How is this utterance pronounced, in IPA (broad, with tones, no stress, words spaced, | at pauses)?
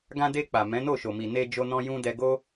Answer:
ɡã˧de˧ k͡pa˨ mɛ̃˨˦no˦˨ʃo˨mi˨ ne˧d͡ʒo˧nɔ̃˧ jũ˧dɛ˧ɡo˦